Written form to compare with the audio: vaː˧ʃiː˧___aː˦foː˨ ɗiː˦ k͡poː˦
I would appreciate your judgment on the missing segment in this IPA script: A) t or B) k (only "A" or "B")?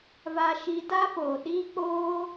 A